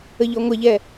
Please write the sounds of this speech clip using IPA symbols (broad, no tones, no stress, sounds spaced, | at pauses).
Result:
ə ʎ ɔ ŋʷ ɐ ʎ ɛ